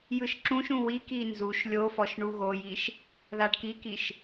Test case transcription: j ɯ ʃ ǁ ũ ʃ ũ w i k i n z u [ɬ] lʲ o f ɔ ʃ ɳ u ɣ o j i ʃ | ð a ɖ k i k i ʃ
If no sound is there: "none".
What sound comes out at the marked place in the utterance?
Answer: ʃ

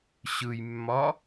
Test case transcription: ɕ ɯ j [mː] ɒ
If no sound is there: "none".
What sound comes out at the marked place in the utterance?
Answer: mː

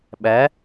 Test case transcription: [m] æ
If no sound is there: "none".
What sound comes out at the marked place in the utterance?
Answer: ɓ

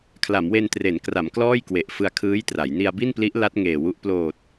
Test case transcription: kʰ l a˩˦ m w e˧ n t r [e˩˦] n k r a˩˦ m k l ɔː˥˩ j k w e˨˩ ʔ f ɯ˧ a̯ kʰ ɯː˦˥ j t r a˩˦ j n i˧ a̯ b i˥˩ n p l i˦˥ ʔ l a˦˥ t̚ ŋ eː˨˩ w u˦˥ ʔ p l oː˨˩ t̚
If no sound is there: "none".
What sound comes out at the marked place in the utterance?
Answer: e˩˦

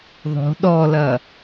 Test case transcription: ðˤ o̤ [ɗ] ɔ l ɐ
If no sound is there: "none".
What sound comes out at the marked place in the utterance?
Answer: ɗ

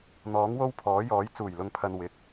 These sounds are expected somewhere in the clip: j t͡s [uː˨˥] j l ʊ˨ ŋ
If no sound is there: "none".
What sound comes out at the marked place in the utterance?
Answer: uː˨˩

